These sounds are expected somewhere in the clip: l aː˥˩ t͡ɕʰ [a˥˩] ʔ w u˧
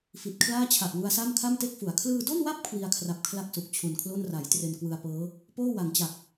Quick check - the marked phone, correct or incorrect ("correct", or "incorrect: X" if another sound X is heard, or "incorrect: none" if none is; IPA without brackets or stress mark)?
incorrect: a˨˩